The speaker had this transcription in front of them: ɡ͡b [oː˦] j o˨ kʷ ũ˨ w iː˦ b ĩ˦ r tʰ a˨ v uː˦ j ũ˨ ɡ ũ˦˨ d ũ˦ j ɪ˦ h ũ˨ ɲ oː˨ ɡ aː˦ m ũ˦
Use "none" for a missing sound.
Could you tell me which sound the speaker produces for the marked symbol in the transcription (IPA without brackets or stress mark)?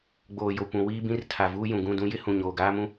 oː˨